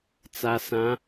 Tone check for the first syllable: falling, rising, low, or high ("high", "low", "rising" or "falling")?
low